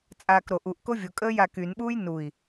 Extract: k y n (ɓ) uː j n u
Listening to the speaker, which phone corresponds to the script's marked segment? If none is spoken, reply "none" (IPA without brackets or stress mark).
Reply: ɓ